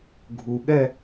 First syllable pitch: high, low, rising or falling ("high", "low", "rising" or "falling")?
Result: low